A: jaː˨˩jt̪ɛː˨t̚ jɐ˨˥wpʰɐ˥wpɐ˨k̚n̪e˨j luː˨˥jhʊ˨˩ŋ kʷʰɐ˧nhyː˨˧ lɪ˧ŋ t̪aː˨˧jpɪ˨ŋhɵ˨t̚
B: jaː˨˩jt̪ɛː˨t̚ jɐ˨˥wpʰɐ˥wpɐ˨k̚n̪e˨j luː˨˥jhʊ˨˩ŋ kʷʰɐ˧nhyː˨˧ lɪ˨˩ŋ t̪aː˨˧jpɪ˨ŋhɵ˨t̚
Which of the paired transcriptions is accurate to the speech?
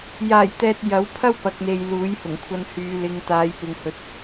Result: A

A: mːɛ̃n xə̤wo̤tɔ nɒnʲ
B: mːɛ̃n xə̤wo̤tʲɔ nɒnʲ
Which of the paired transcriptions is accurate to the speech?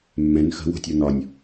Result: B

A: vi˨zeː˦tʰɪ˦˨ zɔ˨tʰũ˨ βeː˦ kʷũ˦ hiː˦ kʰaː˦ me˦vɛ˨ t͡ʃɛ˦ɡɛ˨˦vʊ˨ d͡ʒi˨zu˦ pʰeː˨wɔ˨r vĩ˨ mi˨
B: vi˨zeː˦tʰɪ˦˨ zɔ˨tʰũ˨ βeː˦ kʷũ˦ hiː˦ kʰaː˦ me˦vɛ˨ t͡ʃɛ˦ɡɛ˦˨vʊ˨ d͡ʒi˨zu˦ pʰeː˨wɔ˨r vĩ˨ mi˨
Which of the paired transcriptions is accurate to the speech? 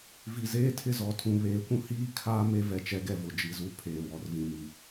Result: B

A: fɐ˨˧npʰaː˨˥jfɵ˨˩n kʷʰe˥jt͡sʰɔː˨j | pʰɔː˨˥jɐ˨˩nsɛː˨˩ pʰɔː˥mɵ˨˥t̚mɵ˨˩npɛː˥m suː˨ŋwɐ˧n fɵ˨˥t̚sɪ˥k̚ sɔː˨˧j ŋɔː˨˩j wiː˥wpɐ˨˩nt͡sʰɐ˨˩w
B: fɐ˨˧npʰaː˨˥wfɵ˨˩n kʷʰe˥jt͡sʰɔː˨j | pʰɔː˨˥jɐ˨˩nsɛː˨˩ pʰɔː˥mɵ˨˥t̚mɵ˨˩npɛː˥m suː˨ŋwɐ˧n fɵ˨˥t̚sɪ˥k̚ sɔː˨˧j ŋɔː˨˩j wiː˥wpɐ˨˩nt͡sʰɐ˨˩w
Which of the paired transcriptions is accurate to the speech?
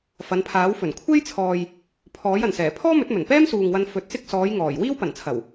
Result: B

